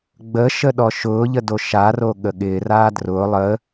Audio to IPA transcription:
ɡ͡bəʃə ɗɔʃʊːʎə doʃaro ɠəɠɪːraː drʊː lˠə

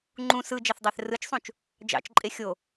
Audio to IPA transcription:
ŋ͡ǃũ sɯd͡ʒɑθdˤæθ rɯt͡ʃsˤũt͡ʃ | d͡ʒɑ̰t͡ʃǃʼe xʲo

